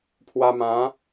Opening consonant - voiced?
no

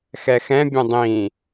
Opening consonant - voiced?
no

